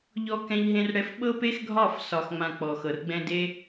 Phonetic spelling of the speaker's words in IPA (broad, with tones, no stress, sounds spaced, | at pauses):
ʎ ɔ˦ k ɛ̃˧ ʎ ɦ ẽ˧ r ɽ ɛ˧ f ɓ ɤ˦ p e˦ x ɡʱ ɒ˦˨ f s ɒ˨ x ŋ͡m ã˨ k͡p ɔ˨ x ɤ˨ r ɡ͡b ɛ̃˦ d e˧